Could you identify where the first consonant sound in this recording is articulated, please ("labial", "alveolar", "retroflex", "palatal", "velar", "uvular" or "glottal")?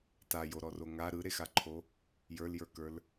alveolar